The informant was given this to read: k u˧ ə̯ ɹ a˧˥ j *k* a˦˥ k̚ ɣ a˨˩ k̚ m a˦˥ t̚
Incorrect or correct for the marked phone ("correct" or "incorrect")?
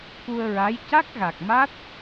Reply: incorrect